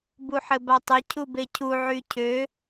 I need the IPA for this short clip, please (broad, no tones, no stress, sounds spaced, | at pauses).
b u ħ ɘ b a tˤ ɘ cʰ u b e cʰ u ʕ y cʰ ø